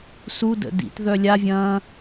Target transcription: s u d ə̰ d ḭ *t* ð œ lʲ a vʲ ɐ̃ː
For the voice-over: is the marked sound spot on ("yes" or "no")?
yes